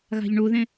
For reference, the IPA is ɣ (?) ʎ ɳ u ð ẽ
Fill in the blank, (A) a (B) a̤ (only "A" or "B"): B